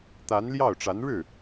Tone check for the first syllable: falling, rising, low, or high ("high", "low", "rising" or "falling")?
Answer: rising